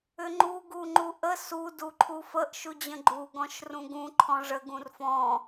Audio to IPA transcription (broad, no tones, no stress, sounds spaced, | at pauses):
ʏ ŋ͡ǃ u ɡ u ŋ͡ǃ u ʔ ə s u d u ǃʰ u f ə ʔ ʃ u d͡ʑ ə̃ ɡ͡ǃ u ɡ ɔ̃ ʃ r ũ ɡ ũ ǃʰ ɔ̃ ʐ ə ɡ ũ r f ɔ̃